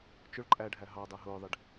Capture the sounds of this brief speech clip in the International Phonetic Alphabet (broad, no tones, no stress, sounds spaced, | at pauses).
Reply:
t͡ʃ ʊ ɭ ǃʼ æ ɖʱ æ ɦ ɑ dˤ æ ɦ ʊː ðˤ ɪ ɖ